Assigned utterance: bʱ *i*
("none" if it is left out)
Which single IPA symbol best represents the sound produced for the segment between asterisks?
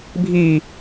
i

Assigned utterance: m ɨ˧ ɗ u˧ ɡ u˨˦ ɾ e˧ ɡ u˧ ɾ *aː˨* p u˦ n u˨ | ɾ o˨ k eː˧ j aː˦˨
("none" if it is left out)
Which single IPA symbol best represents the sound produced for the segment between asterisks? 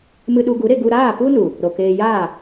aː˦˨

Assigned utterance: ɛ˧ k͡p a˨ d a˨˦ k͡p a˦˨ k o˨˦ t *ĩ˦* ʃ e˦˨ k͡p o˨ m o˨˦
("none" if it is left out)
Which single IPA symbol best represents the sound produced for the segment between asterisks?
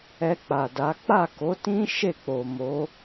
ĩ˦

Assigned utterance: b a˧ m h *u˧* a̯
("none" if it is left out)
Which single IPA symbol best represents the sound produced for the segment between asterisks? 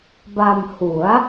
u˩˦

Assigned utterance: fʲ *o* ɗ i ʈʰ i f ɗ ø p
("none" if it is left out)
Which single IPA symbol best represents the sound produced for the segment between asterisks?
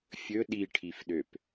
ɵ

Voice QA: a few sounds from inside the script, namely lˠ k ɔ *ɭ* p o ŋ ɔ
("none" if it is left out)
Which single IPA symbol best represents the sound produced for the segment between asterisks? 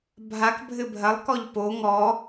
ʎ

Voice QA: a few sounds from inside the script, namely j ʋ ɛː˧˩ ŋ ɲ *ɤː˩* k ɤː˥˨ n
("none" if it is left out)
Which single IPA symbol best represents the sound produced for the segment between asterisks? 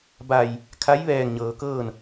ɤː˩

